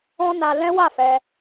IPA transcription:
ɔ̃˦ n a˧ l ɛ̃˦ w a˦˨ f ɛ˧

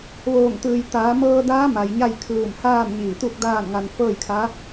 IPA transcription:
ʋ oː˧˩ ŋ t̪ ɯː˩ j t̪ aː˩˧ m ɤː˧ d aː˧˥ m a˩ j ɲ a˥˨ j kʰ ɯː˧˩ m h aː˥˨ m ɲ iː˧˩ t̪ u˥˨ k̚ d aː˥˨ n ŋ a˧ n f ɤː˥˨ j kʰ a˧˥

